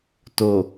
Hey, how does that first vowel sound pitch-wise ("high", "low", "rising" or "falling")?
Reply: low